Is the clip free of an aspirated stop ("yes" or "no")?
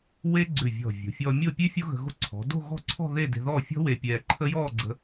no